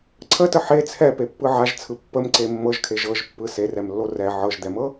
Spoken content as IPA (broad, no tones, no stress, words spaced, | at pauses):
ǀʰətə ħe t͡sʰɛpepːɯ ʕaʒt͡sʰɯ pːəmǀe mːɤʒkʰe ʒɤʒpːɯ serɛmlːo rɛ ʕɤʒd̪ɛmɤ